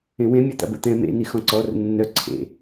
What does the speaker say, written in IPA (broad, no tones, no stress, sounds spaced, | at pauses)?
ẽ w ẽ mʲ ə˞ t̪ a̰ b ə̰ t̪ ɛ̃ m ḛ n i x ɔ̃ ǀ ɔ r ə̰ nː œ ǀʰ ḛ